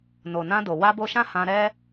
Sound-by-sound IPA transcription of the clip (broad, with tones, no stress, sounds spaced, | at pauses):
n o˨ n ã˧ d o˨ w a˧ b o˧ ʃ ã˦ h ã˧ ɾ ɛ˦